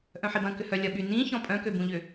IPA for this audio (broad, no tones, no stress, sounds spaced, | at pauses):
ʔ œ̃ ħ i b ɐ̃ k ʏ h œ lʲ ɐ ɓ y n ĩ ç ɔ̃ pʼ œ̃ k ø b ũ ʎ ʏ